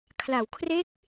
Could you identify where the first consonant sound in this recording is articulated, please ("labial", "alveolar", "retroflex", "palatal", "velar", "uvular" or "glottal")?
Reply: velar